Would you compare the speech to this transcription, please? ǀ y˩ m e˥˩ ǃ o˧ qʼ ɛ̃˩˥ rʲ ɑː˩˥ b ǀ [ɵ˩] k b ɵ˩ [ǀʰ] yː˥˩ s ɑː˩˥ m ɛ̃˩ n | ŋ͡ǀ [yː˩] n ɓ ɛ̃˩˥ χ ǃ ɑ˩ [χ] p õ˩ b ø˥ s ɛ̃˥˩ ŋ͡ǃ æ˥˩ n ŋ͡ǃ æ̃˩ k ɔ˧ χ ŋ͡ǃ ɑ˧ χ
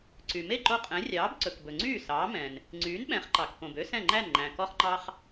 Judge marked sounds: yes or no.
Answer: yes, no, no, no

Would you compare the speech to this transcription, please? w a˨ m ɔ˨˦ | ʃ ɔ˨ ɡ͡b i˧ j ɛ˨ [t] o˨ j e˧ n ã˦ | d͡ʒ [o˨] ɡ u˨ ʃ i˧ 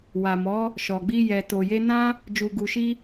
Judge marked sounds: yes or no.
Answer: yes, no

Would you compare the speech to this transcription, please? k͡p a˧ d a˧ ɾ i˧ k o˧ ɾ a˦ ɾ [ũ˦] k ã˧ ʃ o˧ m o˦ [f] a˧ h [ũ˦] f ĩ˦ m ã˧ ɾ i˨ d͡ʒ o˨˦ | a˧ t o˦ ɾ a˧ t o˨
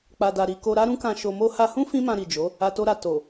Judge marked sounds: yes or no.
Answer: yes, no, yes

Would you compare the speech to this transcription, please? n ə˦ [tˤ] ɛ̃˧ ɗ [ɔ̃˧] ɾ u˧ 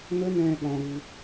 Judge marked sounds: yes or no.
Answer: no, yes

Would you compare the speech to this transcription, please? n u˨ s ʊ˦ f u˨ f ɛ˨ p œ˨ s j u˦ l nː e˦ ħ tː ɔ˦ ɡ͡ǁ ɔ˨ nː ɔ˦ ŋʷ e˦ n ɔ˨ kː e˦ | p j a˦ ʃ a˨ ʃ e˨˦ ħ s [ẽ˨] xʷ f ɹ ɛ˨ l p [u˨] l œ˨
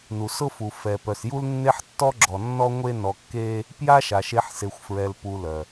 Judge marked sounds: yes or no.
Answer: no, yes

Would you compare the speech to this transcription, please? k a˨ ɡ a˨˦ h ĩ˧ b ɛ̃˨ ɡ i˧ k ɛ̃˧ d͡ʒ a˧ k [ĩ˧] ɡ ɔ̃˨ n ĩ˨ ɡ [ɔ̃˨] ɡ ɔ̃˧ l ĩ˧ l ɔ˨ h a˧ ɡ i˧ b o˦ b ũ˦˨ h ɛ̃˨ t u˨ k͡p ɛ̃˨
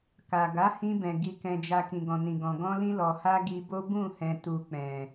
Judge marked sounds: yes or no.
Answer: no, yes

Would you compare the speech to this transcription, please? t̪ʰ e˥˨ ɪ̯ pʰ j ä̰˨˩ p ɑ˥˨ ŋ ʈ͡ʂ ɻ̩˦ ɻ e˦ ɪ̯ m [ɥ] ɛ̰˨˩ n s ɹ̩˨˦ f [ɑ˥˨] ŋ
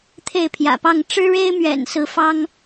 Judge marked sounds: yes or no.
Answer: yes, no

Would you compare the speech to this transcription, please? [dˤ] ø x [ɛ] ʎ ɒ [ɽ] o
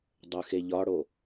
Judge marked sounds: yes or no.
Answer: yes, no, yes

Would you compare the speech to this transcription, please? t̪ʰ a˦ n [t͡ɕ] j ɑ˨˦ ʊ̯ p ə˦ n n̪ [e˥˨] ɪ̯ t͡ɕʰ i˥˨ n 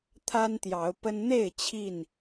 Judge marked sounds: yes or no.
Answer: no, yes

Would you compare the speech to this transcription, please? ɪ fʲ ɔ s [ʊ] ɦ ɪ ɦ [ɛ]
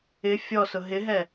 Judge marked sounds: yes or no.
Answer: yes, yes

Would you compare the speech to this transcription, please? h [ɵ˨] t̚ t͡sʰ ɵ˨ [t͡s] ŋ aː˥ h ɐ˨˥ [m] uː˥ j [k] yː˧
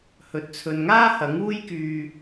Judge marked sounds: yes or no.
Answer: yes, no, no, yes

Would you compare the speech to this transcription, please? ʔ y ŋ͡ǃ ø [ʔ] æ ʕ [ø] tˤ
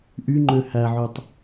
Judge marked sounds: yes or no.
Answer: no, no

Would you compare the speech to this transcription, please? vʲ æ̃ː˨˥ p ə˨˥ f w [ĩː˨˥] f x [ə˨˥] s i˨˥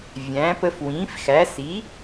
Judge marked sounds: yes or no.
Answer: yes, no

